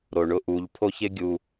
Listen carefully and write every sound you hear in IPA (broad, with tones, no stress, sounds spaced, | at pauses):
ɾ o˩ ɳ ʊ˧ ʔ u˩˧ ʎ pʰ o˥ ç ɪ˥ ɡʲ u˧